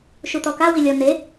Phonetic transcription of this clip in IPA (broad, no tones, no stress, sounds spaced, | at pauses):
ʃ u t̪ ɔ k a w i lʲ ɔ n̪ e